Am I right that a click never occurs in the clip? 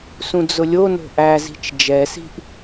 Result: yes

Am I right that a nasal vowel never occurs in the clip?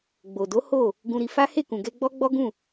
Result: no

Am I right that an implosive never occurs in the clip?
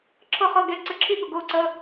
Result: no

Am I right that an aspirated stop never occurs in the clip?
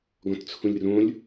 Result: no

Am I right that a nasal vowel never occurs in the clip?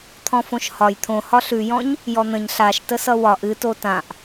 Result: no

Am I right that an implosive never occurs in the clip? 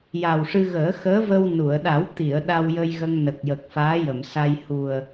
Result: no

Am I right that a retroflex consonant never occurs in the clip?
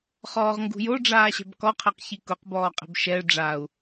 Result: no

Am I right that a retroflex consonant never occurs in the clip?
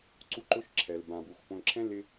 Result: yes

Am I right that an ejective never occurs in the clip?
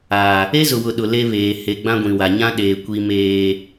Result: yes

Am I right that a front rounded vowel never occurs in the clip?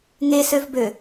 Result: no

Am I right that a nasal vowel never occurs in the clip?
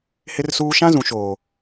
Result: no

